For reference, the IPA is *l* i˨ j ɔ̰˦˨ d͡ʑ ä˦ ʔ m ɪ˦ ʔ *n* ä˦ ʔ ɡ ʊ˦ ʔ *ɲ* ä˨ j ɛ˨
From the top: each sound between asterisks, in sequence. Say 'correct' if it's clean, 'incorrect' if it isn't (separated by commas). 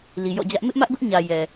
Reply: correct, incorrect, correct